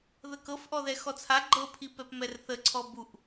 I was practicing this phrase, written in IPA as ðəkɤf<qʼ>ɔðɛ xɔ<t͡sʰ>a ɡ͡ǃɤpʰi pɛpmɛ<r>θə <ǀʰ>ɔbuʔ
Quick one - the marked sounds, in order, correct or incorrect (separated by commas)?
incorrect, correct, correct, correct